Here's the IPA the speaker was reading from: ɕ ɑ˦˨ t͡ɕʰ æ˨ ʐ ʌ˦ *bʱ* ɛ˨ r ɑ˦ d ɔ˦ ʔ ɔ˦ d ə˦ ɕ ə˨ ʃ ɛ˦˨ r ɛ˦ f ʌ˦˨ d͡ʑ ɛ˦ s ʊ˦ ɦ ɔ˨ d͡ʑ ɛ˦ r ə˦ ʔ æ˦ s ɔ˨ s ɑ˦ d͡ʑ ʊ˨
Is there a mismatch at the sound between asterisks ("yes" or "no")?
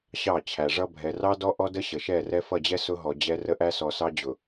no